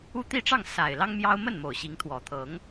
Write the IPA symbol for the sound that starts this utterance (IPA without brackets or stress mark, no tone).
u